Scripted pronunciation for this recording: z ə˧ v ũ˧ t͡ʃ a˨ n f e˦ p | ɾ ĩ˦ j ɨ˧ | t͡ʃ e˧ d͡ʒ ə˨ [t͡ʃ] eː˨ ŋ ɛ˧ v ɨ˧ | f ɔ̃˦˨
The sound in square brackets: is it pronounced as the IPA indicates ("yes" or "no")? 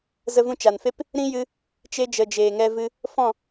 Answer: no